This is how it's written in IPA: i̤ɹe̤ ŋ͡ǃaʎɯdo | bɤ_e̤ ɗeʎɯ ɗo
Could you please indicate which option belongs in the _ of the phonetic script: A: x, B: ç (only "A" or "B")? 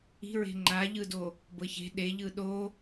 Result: B